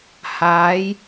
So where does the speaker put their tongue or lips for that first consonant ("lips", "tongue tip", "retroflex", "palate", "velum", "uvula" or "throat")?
throat